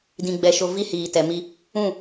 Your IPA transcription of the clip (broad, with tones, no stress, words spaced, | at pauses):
dĩ˨ɡ͡bɛ˨ʃo˨ vi˦hiː˨tɛ˨mi˦ | ũ˦˨